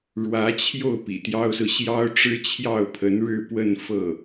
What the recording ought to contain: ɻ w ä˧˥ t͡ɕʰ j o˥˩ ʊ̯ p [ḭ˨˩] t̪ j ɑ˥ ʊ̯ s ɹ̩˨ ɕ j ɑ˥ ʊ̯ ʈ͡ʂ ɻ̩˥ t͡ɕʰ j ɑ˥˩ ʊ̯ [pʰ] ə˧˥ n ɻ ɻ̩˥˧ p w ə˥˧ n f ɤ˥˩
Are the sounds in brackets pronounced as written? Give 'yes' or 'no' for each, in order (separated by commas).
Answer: yes, yes